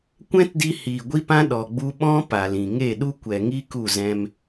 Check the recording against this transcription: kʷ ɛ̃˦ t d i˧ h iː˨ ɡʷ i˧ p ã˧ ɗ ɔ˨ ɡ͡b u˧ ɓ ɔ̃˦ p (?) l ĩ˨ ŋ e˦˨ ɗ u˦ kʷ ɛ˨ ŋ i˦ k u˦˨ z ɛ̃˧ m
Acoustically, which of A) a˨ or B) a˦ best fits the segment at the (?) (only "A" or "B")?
A